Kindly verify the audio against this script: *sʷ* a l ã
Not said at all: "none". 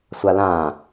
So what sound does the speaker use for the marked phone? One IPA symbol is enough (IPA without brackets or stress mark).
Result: sʷ